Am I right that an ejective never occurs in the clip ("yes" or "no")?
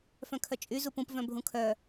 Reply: no